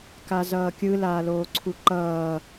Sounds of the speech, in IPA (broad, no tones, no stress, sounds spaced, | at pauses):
k a z ʌː kʲ ɯ l aː l oː ǀʰ u ǃ ʌː